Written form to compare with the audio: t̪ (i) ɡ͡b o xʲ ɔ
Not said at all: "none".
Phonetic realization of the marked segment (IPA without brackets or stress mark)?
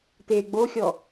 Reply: e